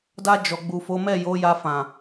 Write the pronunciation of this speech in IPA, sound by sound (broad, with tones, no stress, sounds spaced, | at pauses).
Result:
d a˧ d͡ʒ ɔ˨ ɡ͡b u˨ f o˨˦ m ɛ˦˨ j o˨˦ j a˧ f ã˨